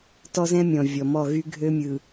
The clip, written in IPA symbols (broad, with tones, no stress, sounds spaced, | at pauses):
t ɔ˦ z ɛ̃˦ mʲ ɔ̃˨ vʲ ɔ˨ m ɔ˦˨ ɣ y˦ ɡʱ ø˦ mʲ ɯ˨